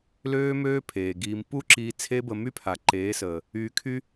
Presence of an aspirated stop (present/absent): present